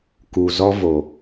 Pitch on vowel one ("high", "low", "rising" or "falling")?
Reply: low